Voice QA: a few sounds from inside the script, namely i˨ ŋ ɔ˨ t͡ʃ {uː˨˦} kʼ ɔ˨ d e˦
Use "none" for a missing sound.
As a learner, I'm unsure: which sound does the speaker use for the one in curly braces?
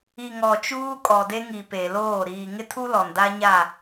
uː˦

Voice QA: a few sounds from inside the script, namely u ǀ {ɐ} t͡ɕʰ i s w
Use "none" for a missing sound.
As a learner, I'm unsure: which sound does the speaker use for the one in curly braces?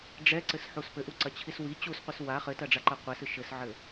ɐ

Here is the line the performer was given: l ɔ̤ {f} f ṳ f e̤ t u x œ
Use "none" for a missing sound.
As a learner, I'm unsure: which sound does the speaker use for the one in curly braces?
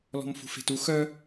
m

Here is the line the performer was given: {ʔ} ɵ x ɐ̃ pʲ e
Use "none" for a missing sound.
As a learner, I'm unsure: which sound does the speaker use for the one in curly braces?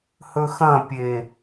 h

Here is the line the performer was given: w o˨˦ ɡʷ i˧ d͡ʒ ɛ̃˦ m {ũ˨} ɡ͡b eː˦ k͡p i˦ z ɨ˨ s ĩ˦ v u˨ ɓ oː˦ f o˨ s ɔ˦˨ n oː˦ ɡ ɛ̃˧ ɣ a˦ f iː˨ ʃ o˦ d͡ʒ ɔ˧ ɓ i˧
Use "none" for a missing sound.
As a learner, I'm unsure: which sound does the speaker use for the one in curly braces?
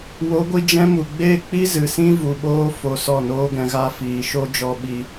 u˨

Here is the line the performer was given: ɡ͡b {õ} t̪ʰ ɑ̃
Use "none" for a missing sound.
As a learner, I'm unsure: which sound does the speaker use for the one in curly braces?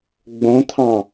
õ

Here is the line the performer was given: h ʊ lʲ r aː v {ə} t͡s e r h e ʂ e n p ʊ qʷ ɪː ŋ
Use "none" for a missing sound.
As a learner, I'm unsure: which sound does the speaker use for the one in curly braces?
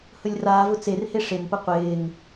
ʊ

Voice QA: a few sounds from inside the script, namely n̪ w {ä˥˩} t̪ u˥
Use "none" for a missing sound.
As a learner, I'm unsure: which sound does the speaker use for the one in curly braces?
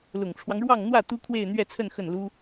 ä˥˩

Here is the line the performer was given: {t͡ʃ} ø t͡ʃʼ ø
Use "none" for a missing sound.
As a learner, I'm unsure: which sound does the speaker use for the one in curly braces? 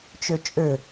t͡ʃ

